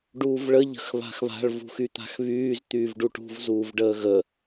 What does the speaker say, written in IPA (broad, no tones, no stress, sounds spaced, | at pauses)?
ɖ uː v ɭ ə ʎ ə̤ x β a̤ x β a̤ ɭ v ṳ x y t̪ a̤ x β yː z t̪ yː v ɖ u ʈ ṳ v z uː v ɖ əː ɣ ə